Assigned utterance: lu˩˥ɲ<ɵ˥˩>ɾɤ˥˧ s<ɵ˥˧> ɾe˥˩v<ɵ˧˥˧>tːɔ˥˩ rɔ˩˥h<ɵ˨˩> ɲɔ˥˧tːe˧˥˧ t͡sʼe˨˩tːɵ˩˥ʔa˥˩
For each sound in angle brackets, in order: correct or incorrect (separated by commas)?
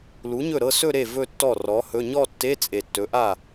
correct, correct, incorrect, incorrect